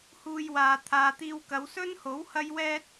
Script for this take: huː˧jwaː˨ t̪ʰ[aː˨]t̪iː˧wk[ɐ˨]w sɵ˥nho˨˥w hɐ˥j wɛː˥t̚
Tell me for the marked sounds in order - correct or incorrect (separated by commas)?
correct, incorrect